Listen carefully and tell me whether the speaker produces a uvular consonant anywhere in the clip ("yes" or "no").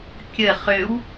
yes